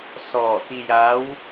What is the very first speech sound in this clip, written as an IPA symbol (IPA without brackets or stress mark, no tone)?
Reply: s